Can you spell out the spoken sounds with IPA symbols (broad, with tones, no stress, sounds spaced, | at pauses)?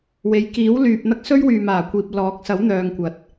w e˨˧ j k iː˨˥ w l yː˨ p̚ n̪ ɐ˥ k̚ s ɵ˥ ɥ w yː˨ m aː˨˩ kʷ iː˨ p̚ l ɔː˨˥ k̚ s ɐ˨˥ w n̪ œː˨ ŋ kʷ ɐ˨ t̚